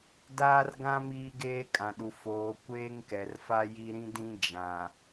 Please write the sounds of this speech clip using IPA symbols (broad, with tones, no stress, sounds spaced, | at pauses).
d aː˦ r ɡ ã˦ m iː˦ ɡ eː˦ kʼ ã˨ ɗ u˨ f oː˨ kʷ eː˦ ŋ k ɛ˨ r f a˦ j i˦ ɾ ĩ˦ d ĩ˦ d͡ʒ ã˨